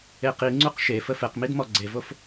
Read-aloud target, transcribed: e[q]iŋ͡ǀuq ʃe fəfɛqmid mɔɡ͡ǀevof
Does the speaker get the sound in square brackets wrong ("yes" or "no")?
no